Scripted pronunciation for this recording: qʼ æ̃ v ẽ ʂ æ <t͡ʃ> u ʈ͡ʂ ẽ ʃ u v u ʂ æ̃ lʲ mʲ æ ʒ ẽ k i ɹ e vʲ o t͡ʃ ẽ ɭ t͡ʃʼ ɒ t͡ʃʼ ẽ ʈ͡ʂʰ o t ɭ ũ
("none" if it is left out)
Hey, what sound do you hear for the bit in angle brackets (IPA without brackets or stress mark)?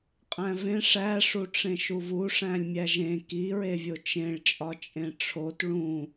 ʂ